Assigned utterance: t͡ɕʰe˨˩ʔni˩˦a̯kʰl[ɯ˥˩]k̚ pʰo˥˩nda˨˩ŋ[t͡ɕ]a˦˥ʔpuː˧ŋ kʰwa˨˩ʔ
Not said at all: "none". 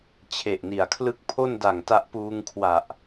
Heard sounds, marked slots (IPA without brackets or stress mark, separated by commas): ɯ˥˩, t